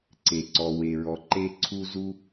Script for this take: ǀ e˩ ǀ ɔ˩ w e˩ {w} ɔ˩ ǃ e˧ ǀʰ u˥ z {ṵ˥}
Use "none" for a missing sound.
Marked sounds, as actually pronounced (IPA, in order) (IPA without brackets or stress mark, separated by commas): ɹ, u˥